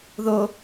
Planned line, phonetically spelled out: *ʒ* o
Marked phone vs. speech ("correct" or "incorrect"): incorrect